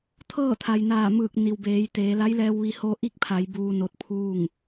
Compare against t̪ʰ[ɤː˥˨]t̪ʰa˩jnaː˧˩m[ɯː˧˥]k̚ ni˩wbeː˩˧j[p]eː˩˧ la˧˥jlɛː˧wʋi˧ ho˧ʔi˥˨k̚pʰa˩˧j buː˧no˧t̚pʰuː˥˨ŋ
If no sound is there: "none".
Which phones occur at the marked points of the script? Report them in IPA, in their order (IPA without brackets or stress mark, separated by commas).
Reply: ɤː˥˨, ɯː˧˩, t̪